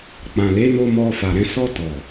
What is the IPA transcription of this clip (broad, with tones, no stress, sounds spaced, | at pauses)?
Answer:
k͡p ã˨ l e˨˦ n o˧ m ɔ˧ f a˨ ɾ ɛ̃˧ s ɔ˧ t ɔ˨